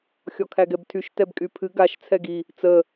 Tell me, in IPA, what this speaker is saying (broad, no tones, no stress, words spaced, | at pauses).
xʲɔkʰæɡɛbtʰyʃ tɛbkʼypʰɨ ɡaʃ t͡sʰɛɡi | t͡sə